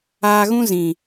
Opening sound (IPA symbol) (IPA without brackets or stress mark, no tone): aː